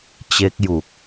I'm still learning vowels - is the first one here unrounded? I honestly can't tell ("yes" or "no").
yes